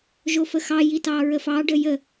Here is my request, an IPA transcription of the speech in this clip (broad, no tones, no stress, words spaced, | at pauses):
ʒofəxɑji tɑɹəfɑɖə jə